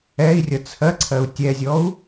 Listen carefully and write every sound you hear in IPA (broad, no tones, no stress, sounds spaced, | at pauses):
ɛ i̯ rʲ ʌ t͡sʰ ɜ ǀʰ ɜ u̯ tʲ ɛ zʲ ɔ u̯